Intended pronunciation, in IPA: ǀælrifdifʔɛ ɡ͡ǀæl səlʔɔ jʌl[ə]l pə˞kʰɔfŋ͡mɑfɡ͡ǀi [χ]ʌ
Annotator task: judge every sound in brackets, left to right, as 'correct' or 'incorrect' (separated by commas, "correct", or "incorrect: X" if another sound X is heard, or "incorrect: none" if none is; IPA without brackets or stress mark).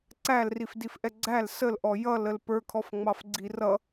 correct, incorrect: r